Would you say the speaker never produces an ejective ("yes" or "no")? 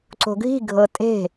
no